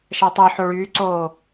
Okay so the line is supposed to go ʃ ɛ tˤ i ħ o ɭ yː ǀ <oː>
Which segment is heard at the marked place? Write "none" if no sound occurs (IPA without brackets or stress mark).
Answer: oː